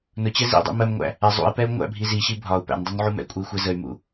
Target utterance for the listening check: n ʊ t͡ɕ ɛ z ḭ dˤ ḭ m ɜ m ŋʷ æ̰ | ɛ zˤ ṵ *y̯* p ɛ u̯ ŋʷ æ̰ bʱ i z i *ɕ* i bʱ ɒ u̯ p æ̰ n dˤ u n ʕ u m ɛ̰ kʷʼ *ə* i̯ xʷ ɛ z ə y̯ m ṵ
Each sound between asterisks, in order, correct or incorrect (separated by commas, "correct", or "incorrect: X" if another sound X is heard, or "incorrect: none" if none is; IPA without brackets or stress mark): incorrect: i̯, correct, correct